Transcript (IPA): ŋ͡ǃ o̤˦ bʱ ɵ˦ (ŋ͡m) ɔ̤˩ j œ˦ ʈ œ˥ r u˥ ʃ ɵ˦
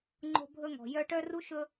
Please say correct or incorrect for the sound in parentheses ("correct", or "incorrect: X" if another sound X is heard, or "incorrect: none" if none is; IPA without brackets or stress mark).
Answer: incorrect: ŋ